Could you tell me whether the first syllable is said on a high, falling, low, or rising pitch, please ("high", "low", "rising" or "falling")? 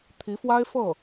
rising